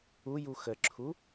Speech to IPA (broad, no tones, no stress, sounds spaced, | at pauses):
u j u x ə ǁʰ u